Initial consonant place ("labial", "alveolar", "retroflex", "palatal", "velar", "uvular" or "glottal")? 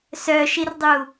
alveolar